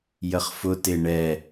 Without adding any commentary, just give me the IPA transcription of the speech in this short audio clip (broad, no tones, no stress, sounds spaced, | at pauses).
j ə χ f ʊ t ɪ ɳ ɛ